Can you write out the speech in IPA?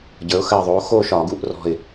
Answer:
ɟə˞˩˥ʊ̯ xə˧˩ɪ̯ðˤo˩˥ xo˥˧ʃɒ˧˩˧ ɡu˧˩˧ʔrɔ̤˧˩ɪ̯

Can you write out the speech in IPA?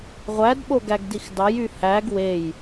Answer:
ʁʷædɓoɡæɡdix dɑjy hæɡ wej

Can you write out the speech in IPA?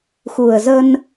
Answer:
xu˨˩ə̯zə˧n

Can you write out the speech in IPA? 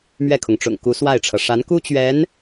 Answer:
mɥɛ˥˩kʰʊ˩ŋʈ͡ʂʊ̰˨˩ŋku˧˥ swa˥˩ɪ̯ʈ͡ʂʰɤ˩ ʂa˧˥nku˥ t͡ɕɥɛ˧˥n

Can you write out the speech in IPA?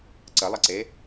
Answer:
ǀəlˠəǀe

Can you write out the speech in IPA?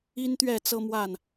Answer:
i˦nt̪ɥɛ˥˨ t͡sɤ˦mwa˥˨n

